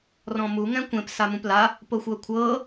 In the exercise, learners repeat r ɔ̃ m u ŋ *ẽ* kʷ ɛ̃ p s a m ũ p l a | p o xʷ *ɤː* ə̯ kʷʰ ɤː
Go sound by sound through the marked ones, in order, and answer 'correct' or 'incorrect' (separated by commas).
incorrect, incorrect